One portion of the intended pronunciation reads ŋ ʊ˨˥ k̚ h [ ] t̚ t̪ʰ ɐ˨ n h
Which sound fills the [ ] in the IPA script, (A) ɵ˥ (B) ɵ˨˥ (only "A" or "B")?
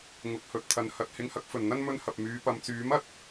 B